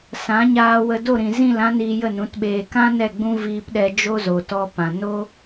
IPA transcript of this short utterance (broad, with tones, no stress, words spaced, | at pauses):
sã˨˦ ɲaː˧wə˧do˦˨ɾĩ˨ zĩ˦˨lã˦ niː˧ jə˦˨nũ˨˦tɓeː˧ kã˦ nɛ˦˨ɡ͡bũ˦ viː˧pɗɛ˧ d͡ʒo˦zo˨tɔ˧ pã˨ no˦